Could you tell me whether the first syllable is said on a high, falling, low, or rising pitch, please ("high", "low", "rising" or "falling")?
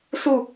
falling